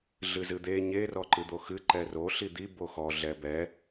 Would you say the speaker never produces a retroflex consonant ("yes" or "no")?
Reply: yes